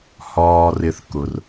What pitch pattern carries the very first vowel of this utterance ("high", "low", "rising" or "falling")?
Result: low